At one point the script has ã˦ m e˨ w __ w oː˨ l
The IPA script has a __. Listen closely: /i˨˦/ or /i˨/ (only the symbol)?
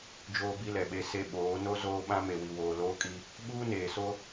i˨